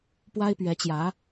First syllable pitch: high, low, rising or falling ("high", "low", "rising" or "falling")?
high